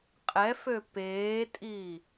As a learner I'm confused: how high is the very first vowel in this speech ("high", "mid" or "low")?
mid